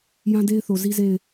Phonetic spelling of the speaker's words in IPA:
j ã˦ d e˦ ɪ̯ θ o˨ z i˦ z e˦˨ ɪ̯

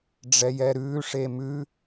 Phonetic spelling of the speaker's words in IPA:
ɖ͡ʐ ɛ j ɛ ɾ ʉː ʂ e m ʉ

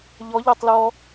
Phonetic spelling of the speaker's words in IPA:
ʎ ɔ ʎ a tˤ l ɔ

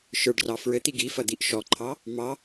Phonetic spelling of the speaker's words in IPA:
ʃ ə˞ ɖ r ɑ f ɹ ɘ t̪ i ɡ i f ɐ d̪ i ʔ ʃ ɔ ǃʰ ɑ | m ɑ

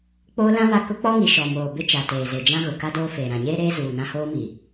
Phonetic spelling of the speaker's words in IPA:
k͡p oː˦ l ã˦ β a˦˨ k ʊ˦ k͡p ɔ˦ ŋ i˨ ʃ ɔ˨ m oː˨ b ɪ˦ t͡ʃ a˨ t eː˨ z e˨ d͡ʒ ã˦ ɣ ʊ˨ k a˦ d oː˦ f eː˨ ɾ ã˨ ɲ eː˦ ɾ eː˦ z uː˨ n ã˦ h oː˦ m i˨

